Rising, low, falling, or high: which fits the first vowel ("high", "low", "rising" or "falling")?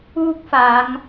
high